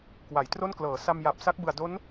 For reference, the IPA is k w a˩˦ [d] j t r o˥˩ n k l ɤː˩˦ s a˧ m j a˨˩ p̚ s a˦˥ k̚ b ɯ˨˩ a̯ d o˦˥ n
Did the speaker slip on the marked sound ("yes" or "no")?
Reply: yes